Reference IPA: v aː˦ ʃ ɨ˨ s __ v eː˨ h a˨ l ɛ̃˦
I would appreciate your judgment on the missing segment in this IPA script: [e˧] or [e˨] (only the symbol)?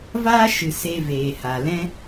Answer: e˧